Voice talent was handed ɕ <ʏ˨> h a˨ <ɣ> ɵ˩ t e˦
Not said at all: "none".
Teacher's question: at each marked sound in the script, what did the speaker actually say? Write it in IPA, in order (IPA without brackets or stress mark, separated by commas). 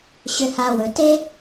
ʏ˨, w